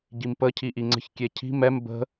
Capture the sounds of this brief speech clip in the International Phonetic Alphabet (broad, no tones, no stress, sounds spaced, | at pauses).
ɟ i m p ə cʰ i ʔ i ŋ͡ǀ ə̤ ç kʲ e cʰ i̤ m ɛ m b ə̤